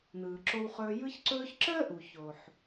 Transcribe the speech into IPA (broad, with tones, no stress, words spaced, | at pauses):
n̪ɯː˨ǁo˦wχɵː˦ jɯ˦çǀɵː˦çǁəː˥ʔu˨ ço˨ħ